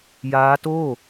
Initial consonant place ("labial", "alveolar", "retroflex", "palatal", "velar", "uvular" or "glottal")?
palatal